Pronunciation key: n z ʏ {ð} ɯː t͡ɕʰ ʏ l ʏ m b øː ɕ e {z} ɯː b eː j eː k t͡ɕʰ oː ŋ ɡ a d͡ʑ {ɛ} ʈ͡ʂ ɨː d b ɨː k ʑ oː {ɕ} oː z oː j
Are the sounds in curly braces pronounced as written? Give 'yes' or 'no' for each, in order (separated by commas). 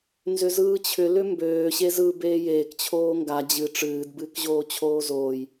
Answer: no, yes, no, no